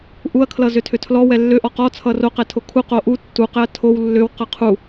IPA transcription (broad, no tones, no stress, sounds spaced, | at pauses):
ʔ u ɐ̯ kʰ l ʌ z ʏ tʰ ʏ tʰ l ɔ w ɛ lː ʏ ʔ ɔ q ɔ t͡sʰ ʌ r o q ɛ tʰ o kʰ u q o ʔ u tː u q ɛ ɐ̯ tʰ o w lː ʏ w q ʌ qʰ u